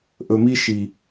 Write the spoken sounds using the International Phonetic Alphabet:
ʔ ɵ˨ m i˧ ʃ i˨

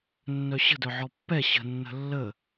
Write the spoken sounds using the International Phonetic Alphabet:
nː œ ɕ ə̤ d œ ʕ ɔ pː ɛ ɕ ə̤ nː ə̤ lː ə

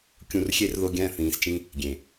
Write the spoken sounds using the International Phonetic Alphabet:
kʲ ũ˨ r xʲ e˧ r ð o˧ ɡʲ æ̃˦˨ θ ĩː˨ s t͡ʃ ĩ˧ | ɡʲ ẽ˨

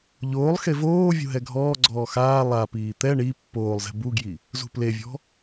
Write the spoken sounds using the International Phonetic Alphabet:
ʎ oː lˠ x e v oː vʲ ṳ ɦ ɛ ɡʱ ɔː ɡ͡ǀ ɔː x aː lˠ a p iː t̪ ɛ ɳ i pː oː lˠ z ɛ̤ b u ɡ j i | z ṳ p l e vʲ ɔ̤

